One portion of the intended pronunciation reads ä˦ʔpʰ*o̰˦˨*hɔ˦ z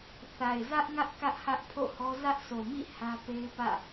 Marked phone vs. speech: correct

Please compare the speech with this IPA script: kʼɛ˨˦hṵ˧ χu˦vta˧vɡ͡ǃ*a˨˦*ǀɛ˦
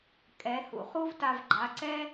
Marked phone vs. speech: correct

